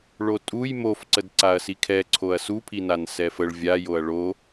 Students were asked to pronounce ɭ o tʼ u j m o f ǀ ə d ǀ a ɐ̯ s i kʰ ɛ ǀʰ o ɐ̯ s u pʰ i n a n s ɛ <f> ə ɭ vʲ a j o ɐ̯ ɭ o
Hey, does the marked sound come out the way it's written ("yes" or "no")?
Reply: yes